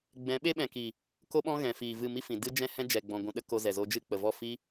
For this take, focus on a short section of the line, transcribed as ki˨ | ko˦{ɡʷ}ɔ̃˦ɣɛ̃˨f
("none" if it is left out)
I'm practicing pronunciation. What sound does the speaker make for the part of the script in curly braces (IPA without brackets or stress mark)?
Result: ɓ